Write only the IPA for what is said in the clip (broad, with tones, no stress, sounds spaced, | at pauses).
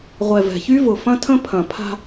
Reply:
ʁʷ ɛ˨ v ɛ̤˨ ç y˦ v ʊ˨ f ɐ̃˦ tʰ ə̃˦ pʰ ɐ̃˨ pʰ a̤˦